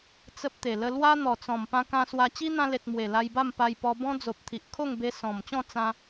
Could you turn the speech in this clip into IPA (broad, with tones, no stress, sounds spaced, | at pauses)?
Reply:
t͡s ə˦ p̚ t̪ e˨˩ l ə˧ l w a˦ n̪ ɔ˨˩ t͡s ɔ̃˨˩ m p ã˧ k ã˧ s w a˧ t͡ɕ i˦ n̪ ã˧ l e˨ t̚ m w e˨˩ l a˧ j b a˥˧ m p a˧ j p ɔ˧ b ɔ̃˦ d͡z o˨ p̚ t̪ʰ i˨ ʔ kʰ o˥˧ ŋ b e˧ s ɔ̃˨˩ m t͡ɕ ɔ̃˥˧ t͡s ã˧